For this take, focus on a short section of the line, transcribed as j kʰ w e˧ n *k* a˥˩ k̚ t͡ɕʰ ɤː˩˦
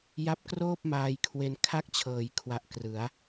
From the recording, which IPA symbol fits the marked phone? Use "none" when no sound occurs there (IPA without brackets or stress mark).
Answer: kʰ